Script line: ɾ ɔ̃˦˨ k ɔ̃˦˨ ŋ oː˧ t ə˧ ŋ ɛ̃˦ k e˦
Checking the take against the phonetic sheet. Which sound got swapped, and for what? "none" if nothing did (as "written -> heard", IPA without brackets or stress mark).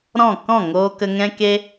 t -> k